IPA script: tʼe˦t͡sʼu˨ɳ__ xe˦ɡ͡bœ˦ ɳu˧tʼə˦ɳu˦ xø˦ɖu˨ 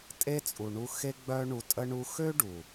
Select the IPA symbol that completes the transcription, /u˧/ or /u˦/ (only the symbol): u˧